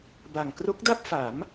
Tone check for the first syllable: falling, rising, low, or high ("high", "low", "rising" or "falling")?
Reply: low